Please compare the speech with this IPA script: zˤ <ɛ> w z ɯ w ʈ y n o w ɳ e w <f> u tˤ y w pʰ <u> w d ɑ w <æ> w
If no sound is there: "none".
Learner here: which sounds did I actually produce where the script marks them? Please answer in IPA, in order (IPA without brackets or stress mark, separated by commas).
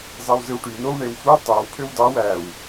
e, f, ø, æ